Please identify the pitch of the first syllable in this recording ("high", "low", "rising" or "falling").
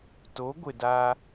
rising